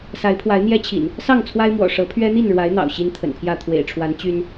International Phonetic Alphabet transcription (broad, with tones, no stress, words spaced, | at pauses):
sa˨˦ɪ̯pʰwa˨˦ɪ̯n̪jɛ˦t͡ɕʰḭ˨˩n | sɑ˥˨ŋt͡sʰwa˦ɪ̯mwɔ̰˨˩ ʂɤ˨˦ pʰɥɛ˦n̪i˥˨nɻwa˨˦ɪ̯ n̪ɑ̰˨˩ʊ̯ɕi˦nt̪ʰə̰˨˩npʰjä˥˨ t̪ʰwḛ˨˩ɪ̯ʈ͡ʂʰwa˨˦n t͡ɕy˦n